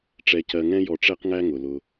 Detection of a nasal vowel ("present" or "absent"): present